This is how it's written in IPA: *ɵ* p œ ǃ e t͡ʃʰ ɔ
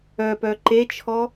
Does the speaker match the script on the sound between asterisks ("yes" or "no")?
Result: no